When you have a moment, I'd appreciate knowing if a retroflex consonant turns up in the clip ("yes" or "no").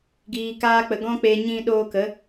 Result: no